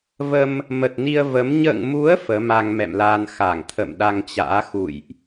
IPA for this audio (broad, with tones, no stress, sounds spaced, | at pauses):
v ə˧ m | m ə˨˩ t̚ n i˧ ə̯ v ə˨˦ m ɲ ə̰ː˧˨ ŋ m u˨˦ ə̯ f əː˨˦ m a˧ ŋ m ɛ̰˧˨ m l aː˧ n x a˧˩ ŋ t̪ʰ ə̰˧˨ m ɗ a˧ ŋ t͡ɕ a̰ː˧˥ x ṵ˧˨ j ʔ